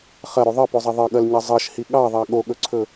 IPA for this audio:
χ ɐ ɾ o ðˤ ʌ p o zˤ ɐ ðˤ ʌ ɠ ɐ l ɲ ʌ zˤ ʌ ʃ h i ɠ ɑ ðˤ ɑ ɠ o ɠ ɵ ǀʰ ɵ

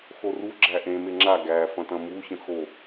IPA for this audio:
x o r u ɡ͡ǁ æ ʔ ẽ m e ŋ͡ǁ a ɡ æ f ɐ̃ t ɐ̃ m u ç ə̃ x o

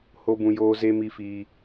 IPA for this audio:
h o˧ b ũ˨ j oː˧ z e˧ m i˨ f iː˨

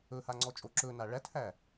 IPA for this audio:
ɵ h a ŋ͡ǀ ɔ t͡ʃʼ o ǁ ɵ n a ɭ æ t h æ

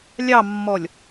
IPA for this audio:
lʲ ɑ mː ɔ lʲ

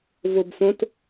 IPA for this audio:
v o b f õ t

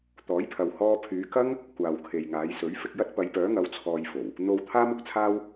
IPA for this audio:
t̪ ɔː˨˥ j pʰ ɐ˨ w h ɔː˧ pʰ yː˨˧ k ɐ˥ ŋ | kʷ aː˨ w kʰ e˨ j ŋ aː˨˧ j s ɵ˨˥ ɥ f ɪ˧ k̚ j ɐ˥ t̚ p ɐ˨˧ j p œː˨˥ ŋ ɐ˨˥ w t͡sʰ ɔː˧ j f o˨˩ w | n̪ o˧ w t̪ʰ aː˥ m ʊ˨˥ k̚ t͡sʰ aː˥ w

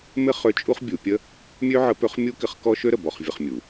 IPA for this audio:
m ɪ˥ χ ø˧˥ t͡ʃʼ u˥ χ bʲ u˩˧ pʲ ə˥ | mʲ ø˥ ʕ ə˧˥ p ø˧˥ χ mʲ u˥ k ɪ˧˥ χ k ɔ˥ ʃ ø˥ ɾ ə˩ b ɔ˧ χ vʲ ə˧ χ mʲ u˩

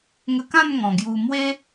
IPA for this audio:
ŋ ə˧ k ã˥˧ n ŋ ɔ̃˨˩ ɡ j u˧ m w e˦

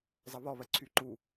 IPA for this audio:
zˤ ɐ β ɔ β ɜ ǀʰ y ǃ u

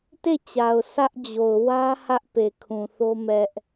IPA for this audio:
t e˦˨ t͡ɕ a˨ ʊ̯ sʰ ä˦ ʔ d͡ʑ o˨ ʊ̯ w ä˦ h ä˦ ʔ p e˨ kʰ ũ˨ θ o˦ m ɛ˦ ʔ

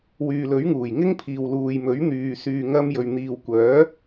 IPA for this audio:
w yː˨ l ɵ˨˥ ɥ ŋ uː˨˩ j ŋ ɪ˥ ŋ pʰ iː˨ w l uː˨ j m ɵ˨˥ ɥ n̪ yː˨ s yː˨ ŋ ɐ˧ m j ɵ˨ ɥ n̪ iː˨ w kʷ œː˨˥

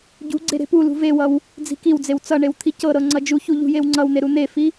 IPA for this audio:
ɟ ṳ ɡ͡ǀ e ɾ e̤ p u l ṳ v e w ʌ w | d͡z i̤ k i w d͡z e w t͡s ʌ ɳ e w t̪ʰ i c ɤ ɾ ɤ ŋ͡ǀ ʌ d͡ʒ u ç u ʎ ṳ j e w ŋ͡ǀ ʌ w n̪ e ɾ u n̪ e f i

